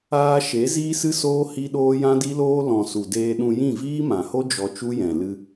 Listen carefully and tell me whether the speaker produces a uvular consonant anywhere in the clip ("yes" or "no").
no